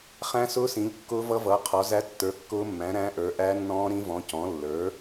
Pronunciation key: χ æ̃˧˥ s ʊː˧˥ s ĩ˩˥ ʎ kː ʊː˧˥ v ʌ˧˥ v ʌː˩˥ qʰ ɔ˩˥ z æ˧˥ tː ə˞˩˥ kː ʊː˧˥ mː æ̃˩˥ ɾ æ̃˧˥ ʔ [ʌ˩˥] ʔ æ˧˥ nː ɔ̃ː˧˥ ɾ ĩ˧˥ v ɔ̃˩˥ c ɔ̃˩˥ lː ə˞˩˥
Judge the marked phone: incorrect: ə˞˩˥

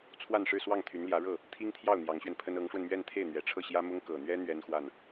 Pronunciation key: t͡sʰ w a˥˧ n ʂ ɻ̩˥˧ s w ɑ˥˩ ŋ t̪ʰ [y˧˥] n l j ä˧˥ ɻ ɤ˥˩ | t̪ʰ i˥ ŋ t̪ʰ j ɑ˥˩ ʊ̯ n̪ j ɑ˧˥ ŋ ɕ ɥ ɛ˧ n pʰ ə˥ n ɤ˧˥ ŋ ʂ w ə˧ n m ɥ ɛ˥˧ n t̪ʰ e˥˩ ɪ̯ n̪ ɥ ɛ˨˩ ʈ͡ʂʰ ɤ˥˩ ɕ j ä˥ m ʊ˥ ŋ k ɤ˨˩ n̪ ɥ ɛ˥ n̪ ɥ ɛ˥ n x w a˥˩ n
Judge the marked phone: correct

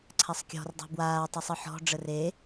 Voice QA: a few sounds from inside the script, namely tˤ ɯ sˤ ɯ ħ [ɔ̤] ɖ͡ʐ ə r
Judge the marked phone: correct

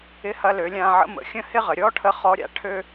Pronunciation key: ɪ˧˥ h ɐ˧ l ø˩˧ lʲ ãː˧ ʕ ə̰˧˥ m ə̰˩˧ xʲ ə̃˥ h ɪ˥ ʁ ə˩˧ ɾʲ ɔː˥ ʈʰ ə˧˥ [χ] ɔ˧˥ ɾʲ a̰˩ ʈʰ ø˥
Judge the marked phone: correct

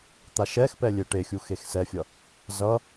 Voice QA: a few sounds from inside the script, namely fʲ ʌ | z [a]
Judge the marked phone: incorrect: ʌ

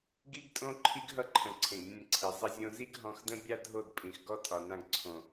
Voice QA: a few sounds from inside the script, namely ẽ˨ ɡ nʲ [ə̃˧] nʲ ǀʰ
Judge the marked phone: correct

